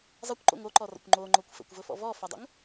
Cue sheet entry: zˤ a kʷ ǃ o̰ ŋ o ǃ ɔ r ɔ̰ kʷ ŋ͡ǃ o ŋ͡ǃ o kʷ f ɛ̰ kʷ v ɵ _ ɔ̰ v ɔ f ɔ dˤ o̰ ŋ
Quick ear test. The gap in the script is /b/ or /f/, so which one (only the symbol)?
f